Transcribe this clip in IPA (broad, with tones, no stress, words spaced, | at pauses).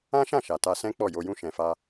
ã˦ʃã˦˨ʃa˨ ta˧sɛ̃˦ k͡pɔ˦˨jo˧jũ˦ ʃɛ̃˧fa˦